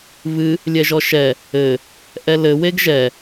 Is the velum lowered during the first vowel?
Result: no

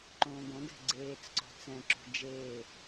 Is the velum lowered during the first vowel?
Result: yes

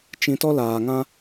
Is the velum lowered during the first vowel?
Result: yes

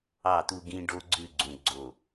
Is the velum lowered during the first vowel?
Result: no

